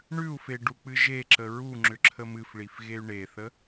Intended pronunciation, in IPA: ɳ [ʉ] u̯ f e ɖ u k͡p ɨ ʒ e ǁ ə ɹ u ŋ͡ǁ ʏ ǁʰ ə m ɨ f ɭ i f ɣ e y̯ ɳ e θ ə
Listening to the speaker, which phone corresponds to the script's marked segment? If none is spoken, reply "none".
ʉ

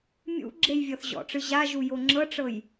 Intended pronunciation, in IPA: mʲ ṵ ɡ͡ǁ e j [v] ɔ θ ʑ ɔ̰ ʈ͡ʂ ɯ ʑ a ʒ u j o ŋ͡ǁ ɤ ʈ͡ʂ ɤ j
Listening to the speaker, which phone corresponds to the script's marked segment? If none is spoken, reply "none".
vʲ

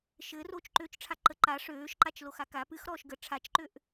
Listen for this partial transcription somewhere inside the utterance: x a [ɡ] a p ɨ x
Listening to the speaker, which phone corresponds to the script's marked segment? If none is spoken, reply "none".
k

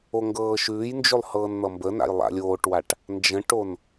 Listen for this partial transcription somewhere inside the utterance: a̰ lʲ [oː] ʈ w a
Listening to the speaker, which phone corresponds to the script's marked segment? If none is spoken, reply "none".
oː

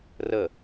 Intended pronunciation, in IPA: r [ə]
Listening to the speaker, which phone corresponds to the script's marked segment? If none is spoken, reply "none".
ə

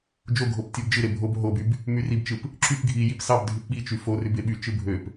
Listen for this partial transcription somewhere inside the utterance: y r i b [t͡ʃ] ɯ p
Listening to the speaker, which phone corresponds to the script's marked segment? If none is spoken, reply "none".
t͡ʃ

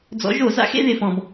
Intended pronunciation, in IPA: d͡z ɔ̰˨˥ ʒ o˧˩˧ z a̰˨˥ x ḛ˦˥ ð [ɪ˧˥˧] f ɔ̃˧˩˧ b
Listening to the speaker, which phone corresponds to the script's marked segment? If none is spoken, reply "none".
ɪ˩˧˩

